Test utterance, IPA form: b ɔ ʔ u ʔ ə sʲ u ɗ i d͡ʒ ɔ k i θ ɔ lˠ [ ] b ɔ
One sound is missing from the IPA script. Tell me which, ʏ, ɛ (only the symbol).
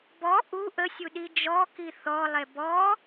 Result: ɛ